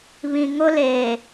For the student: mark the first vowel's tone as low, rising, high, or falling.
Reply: low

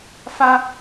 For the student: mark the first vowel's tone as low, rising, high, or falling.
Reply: high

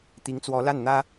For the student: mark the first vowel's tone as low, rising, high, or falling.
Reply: rising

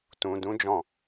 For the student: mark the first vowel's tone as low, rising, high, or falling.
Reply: low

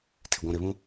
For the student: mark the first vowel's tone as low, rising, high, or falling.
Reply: low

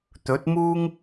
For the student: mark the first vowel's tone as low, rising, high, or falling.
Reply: rising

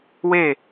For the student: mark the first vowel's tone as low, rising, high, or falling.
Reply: falling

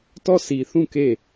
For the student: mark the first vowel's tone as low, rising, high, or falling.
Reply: falling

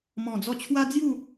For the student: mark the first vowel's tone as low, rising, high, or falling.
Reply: low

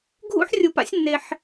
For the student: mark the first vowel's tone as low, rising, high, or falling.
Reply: high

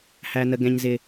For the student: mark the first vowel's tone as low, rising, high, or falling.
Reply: low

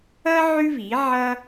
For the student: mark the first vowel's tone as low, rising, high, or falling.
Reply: high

